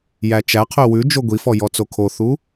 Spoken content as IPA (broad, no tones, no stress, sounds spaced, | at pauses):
j æ t͡ʃ æ qʰ ø w ʉ d͡ʒ o ɡʷ i f ɔ j ɔ t͡s o kʰ o θ u